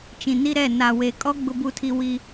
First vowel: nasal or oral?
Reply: nasal